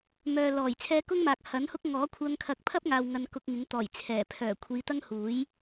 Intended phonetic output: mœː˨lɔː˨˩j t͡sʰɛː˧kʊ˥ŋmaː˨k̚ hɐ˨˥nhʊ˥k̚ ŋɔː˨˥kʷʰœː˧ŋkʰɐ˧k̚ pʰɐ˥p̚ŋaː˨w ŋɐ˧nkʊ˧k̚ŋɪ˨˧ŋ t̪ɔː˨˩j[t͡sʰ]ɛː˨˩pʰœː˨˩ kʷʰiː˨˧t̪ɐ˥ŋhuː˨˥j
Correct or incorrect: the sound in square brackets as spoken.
correct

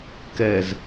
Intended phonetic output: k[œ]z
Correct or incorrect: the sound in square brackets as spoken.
incorrect: ɛ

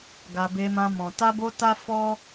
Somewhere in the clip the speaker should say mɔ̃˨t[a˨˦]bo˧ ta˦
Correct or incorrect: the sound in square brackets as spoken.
incorrect: a˧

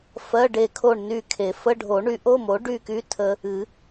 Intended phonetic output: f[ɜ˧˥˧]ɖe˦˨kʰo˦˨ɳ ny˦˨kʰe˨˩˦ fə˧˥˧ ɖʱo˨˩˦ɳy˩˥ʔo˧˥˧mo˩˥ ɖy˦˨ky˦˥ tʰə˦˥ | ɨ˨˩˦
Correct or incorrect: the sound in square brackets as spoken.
correct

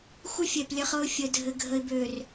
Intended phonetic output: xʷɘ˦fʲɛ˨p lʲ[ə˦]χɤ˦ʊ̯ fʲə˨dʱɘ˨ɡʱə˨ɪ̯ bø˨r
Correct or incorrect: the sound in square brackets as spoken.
correct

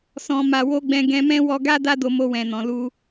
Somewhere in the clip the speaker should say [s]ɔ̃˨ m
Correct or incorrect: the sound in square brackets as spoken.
correct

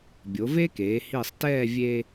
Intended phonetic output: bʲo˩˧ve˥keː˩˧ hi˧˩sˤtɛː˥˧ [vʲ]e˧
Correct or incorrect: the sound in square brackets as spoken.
correct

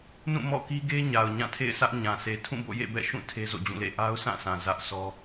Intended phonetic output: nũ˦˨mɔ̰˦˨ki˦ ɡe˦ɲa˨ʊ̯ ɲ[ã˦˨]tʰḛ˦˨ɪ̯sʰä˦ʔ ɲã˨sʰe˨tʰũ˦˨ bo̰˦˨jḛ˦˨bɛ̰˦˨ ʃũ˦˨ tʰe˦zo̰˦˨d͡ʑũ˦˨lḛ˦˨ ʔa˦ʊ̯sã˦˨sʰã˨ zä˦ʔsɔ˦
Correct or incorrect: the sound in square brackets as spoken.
correct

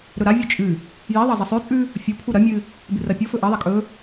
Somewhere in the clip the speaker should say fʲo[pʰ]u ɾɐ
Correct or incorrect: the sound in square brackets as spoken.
correct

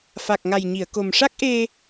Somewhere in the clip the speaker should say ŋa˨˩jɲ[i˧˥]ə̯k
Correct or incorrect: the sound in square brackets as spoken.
incorrect: i˨˩˨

